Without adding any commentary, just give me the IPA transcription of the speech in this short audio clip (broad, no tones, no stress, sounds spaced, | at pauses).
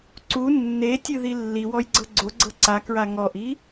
ǀ u nː e tʲ ɯ ð i lː i w ɔ j ɡ͡ǀ ɤ ɡ͡ǀ o ɡ͡ǀ ɤ ǀ a k ɹ a ŋ ɔ ʔ i